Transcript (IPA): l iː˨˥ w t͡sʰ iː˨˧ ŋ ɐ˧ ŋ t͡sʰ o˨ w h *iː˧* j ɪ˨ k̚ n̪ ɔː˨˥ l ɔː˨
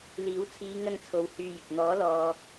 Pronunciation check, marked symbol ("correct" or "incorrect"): incorrect